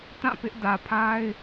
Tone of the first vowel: falling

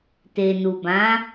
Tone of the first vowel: low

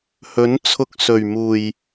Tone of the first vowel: rising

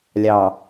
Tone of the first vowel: low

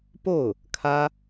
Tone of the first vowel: falling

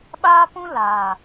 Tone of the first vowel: high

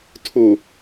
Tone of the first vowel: low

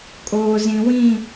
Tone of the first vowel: low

